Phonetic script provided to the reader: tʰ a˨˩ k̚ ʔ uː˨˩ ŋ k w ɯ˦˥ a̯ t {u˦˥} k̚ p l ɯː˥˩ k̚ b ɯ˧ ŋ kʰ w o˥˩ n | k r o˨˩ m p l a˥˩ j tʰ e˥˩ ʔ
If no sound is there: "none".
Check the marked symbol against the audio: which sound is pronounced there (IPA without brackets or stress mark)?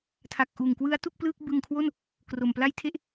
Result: u˥˩